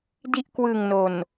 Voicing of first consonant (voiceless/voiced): voiced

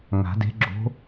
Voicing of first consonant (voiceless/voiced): voiced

